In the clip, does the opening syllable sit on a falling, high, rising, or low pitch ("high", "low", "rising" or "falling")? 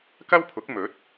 high